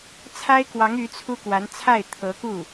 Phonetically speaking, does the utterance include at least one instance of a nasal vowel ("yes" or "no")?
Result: no